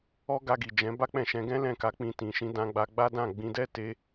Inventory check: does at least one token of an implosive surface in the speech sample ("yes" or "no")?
no